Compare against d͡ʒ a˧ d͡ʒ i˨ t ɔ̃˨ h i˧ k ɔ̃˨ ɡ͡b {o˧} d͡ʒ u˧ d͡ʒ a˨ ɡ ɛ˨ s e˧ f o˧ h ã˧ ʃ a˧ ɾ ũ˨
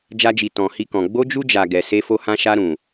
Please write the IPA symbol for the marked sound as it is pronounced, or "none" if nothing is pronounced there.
o˧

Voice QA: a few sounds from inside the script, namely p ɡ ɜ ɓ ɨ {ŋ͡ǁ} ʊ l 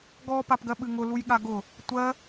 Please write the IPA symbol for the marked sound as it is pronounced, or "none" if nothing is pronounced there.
ŋ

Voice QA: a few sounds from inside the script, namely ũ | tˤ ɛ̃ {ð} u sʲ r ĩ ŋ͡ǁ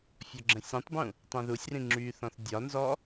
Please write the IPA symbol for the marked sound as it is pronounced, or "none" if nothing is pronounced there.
ð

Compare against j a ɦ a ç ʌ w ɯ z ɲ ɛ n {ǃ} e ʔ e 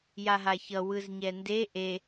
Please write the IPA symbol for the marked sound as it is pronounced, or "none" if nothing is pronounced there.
d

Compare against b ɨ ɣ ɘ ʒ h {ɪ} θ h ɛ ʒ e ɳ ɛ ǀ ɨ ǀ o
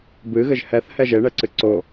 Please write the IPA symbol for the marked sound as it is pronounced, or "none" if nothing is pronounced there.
ɛ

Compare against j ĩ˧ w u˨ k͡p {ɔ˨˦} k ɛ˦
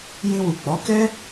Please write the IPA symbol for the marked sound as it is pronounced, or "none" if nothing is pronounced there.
ɔ˨˦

